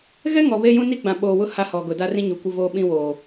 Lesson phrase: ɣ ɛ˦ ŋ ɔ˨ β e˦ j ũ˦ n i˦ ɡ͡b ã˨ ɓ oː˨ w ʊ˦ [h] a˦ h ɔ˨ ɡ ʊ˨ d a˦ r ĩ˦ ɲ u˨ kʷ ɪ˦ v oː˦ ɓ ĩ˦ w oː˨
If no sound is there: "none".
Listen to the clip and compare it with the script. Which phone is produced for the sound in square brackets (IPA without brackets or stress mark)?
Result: h